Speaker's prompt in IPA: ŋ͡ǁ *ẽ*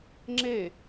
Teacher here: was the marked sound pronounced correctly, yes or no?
no